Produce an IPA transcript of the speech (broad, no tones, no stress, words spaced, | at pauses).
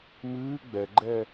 mɨː ɡ͡bɛɡ͡ǃɛ